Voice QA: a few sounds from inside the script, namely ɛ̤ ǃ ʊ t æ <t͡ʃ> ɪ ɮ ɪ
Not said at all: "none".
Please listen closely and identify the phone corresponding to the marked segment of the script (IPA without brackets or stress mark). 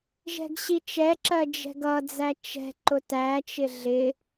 t͡ʃ